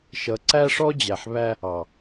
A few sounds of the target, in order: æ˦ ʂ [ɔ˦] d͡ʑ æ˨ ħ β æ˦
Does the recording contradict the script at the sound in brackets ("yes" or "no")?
no